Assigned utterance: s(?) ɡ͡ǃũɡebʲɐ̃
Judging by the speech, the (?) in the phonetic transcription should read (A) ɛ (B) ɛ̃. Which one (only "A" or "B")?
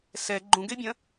A